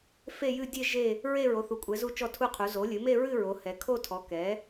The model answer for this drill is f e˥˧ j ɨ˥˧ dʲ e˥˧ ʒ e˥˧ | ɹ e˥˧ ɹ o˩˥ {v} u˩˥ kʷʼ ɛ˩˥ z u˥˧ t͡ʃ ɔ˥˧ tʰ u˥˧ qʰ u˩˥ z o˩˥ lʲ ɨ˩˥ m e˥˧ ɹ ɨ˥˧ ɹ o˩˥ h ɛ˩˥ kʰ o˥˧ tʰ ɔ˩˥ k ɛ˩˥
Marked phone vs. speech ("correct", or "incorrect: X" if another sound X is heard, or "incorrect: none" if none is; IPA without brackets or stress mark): incorrect: θ